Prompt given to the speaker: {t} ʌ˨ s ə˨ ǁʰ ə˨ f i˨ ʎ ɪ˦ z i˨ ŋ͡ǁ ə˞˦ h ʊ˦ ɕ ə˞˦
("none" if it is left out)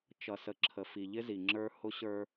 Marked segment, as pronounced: t͡ʃ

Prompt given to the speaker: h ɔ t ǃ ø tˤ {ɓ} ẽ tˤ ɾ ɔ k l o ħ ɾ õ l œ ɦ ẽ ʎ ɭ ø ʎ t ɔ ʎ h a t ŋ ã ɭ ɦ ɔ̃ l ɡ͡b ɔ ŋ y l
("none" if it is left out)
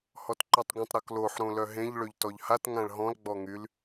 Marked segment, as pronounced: ɡʷ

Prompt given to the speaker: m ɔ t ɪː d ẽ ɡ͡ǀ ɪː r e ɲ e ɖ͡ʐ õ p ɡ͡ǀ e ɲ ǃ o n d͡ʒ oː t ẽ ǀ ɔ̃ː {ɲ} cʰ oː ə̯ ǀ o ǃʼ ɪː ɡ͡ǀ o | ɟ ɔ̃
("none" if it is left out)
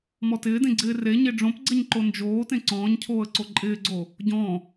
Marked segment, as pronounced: ɲ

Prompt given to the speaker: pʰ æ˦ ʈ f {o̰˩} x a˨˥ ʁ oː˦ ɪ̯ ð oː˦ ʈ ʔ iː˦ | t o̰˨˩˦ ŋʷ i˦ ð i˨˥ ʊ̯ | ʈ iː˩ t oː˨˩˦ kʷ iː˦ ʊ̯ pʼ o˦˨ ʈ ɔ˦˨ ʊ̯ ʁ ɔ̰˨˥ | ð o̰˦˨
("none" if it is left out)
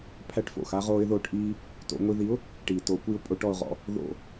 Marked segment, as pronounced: o̰˩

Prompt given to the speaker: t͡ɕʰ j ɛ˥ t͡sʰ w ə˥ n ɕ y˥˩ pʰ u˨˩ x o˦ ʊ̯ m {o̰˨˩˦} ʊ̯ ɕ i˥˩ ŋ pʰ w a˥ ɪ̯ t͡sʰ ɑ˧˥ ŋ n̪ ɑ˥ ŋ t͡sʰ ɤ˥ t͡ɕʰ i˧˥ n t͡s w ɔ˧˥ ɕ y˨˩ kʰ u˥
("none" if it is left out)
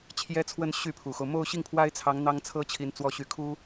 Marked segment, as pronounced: o˥˧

